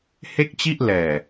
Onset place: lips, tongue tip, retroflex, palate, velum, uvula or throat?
throat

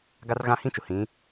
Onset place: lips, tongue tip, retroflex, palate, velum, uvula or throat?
velum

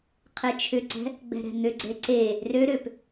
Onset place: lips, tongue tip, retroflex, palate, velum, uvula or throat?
uvula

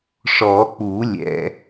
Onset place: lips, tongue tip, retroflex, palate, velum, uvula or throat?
retroflex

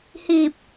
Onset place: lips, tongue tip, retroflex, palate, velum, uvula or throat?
throat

